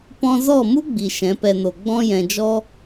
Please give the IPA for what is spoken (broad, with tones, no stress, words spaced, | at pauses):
pɔ̃˧zɔ˦˨mu˦ ɡ͡bi˨ʃɛ̃˨˦pɛ˧no˨ ɡ͡bɔ̃˦jɛ̃˨d͡ʒɔ˦